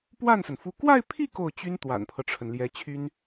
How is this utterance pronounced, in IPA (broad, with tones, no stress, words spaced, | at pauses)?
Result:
pwa˥˩nsə˩n fu˥˧ kwa˥˧ɪ̯pʰi˥˧ ko˥˩ʊ̯t͡ɕy˥n t̪wa̰˨˩npʰɤ˦ʈ͡ʂʰə˩n ljɛ˧˥t͡ɕʰy˥n